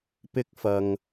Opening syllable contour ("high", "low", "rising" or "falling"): high